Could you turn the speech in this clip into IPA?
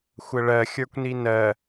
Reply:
xʷəɭɜ xʲə˞kʷninɜ

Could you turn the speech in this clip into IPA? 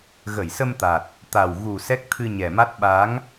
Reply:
ɣə˧˩jsə˧mt̪a˨˩t̚ | t̪a˨˩wɣu˨˩ sɛ˦˥k̚t̪ʰɨ˧ɲɛ˨˩ma˦˥t̚ ɓa˨˦ŋ

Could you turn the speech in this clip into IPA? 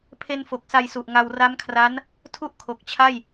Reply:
pʰe˧nfo˨˩k̚sa˧jsu˨˩ʔ ŋa˧w ra˦˥mkʰra˦˥n | tʰu˥˩ʔ kʰo˨˩k̚t͡ɕʰa˥˩j

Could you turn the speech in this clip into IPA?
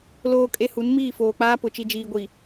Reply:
loː˦kʼe˦hu˨˦n miː˦˨foː˨k͡paː˦pʊ˨ t͡ʃi˨d͡ʒiː˨ɡʷi˨

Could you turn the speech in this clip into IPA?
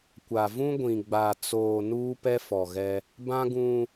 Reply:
kʷa˨vũ˦ ɡʷĩ˨ɡ͡ba˨t͡soː˨ nuː˦pɛ˦fɔ˨ɣɛ˦ | bã˦ɡũ˦

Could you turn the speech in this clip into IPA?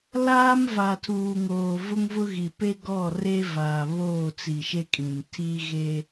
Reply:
laː˦mva˨tʰuː˨ŋoː˨ vʊ˦ŋvʊ˦ɣi˨ pe˦ɡɔ˦˨ re˦vaː˨βoː˦˨ t͡si˨ʃe˦kʼĩ˨n tʰi˦ɣe˦

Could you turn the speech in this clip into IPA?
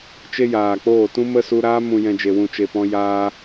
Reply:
t͡ʃe˦jaː˨k͡poː˦˨ tũ˦mə˦su˧ɾaː˦ mũ˨jɛ̃˨ d͡ʒe˨wũ˨t͡ʃe˨pɔ̃˧ jaː˧

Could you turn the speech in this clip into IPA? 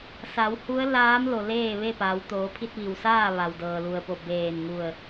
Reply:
sa˩˧whu˧˥ə̯laː˧˥m lo˩ leː˥˨ʋe˥˨paː˩˧w t̪oː˩˧pʰi˧t̚ʋi˩w saː˥˨ ʋa˩wdɤː˩lu˩ə̯po˧˩ beː˧˩nŋu˧˩ə̯

